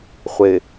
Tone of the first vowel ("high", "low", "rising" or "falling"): low